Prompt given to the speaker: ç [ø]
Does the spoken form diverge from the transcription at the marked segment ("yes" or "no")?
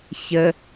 yes